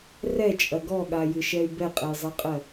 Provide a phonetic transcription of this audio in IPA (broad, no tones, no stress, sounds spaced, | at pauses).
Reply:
r ɛ t͡ʃʼ ɐ ɡ ɔ ɠ a j ɨ ʃ ɛ y̯ b ɛ qʼ ɛ j zˤ ɜ qʼ ɜ